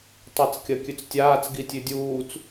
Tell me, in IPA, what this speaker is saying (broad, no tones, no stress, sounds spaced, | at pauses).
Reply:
tˤ e t͡s kʲ ɐ kʲ ʉ t͡s tʲ aː t͡s ɡ i tʲ ʉ dʲ uː t͡s